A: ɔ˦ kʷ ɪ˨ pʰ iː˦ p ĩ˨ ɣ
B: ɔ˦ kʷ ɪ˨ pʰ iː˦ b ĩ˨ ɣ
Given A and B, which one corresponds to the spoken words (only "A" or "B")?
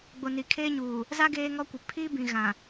B